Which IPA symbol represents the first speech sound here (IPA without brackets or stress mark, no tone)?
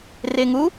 r